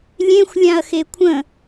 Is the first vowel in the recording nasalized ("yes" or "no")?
yes